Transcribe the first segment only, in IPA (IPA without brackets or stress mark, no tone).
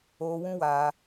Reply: oː